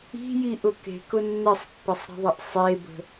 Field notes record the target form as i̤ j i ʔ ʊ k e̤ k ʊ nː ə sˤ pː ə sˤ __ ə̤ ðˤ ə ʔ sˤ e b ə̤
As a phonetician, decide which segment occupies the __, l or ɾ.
ɾ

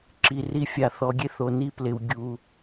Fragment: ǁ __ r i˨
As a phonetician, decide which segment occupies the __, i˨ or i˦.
i˨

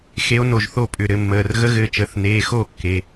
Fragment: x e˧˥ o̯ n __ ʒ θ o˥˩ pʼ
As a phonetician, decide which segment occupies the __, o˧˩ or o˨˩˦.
o˧˩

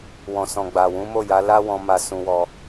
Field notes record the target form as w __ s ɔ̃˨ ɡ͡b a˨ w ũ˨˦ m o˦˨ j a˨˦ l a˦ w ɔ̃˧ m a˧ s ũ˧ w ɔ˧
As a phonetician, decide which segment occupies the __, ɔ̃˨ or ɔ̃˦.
ɔ̃˨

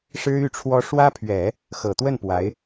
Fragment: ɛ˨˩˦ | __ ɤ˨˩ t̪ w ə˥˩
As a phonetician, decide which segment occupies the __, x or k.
x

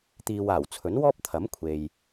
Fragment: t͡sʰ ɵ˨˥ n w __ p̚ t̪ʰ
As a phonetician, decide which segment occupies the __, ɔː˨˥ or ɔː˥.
ɔː˥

